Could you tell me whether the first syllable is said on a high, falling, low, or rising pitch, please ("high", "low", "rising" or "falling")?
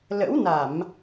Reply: rising